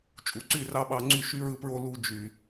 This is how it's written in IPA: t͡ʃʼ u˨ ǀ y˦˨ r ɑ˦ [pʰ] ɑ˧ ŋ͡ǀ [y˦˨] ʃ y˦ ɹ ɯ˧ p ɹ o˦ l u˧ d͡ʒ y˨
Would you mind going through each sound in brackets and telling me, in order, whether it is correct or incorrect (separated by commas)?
incorrect, correct